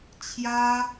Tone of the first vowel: high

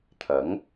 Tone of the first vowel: rising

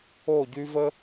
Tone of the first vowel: falling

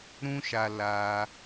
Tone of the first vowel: high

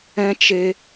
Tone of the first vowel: high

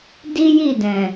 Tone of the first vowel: high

